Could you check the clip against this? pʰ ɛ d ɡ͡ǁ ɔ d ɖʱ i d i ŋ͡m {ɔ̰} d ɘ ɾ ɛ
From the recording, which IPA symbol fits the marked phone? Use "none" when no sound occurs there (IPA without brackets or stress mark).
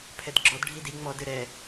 ɔ